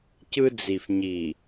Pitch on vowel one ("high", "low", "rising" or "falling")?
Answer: high